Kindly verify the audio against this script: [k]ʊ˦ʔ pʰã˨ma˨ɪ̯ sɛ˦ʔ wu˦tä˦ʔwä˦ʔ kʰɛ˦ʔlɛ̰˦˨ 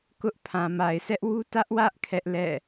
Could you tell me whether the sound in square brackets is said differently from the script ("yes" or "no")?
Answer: no